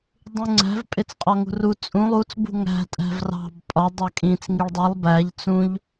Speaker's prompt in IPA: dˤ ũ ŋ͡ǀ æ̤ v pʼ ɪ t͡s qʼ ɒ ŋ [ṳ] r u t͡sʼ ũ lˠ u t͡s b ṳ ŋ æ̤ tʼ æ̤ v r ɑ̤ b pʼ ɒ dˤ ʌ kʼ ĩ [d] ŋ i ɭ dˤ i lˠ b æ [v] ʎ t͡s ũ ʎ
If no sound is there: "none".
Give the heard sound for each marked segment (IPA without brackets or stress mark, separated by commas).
ṳ, t͡s, none